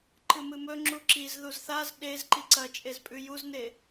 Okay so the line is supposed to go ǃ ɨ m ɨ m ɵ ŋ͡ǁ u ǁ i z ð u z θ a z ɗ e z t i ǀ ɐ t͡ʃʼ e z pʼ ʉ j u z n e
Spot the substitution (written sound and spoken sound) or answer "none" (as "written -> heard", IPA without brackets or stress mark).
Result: t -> ǃ